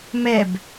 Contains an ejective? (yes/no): no